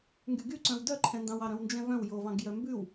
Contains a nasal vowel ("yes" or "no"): yes